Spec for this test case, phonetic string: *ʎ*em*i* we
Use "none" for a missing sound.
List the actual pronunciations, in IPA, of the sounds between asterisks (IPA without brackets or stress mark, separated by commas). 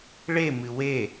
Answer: ɭ, ɨ